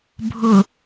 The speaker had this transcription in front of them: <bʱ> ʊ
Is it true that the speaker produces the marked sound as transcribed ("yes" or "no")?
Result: yes